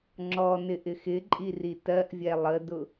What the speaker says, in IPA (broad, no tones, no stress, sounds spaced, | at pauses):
ŋ͡ǁ ɔ n ɪ ʔ ɪ x ɪ ǃʼ i r i t ɜ ʔ vʲ ɛ lˠ ə d ʊ